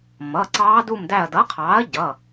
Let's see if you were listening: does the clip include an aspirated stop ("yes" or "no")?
yes